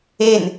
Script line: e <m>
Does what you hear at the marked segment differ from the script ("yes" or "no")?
yes